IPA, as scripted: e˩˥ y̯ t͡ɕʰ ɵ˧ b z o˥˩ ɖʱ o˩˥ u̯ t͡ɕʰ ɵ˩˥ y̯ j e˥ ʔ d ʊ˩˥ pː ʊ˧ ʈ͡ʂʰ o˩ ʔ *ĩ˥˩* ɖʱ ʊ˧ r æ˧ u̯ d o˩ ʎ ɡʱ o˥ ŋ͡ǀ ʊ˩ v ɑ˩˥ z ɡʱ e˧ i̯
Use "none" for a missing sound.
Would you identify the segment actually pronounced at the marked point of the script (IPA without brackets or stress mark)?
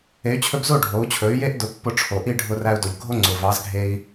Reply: i˥˩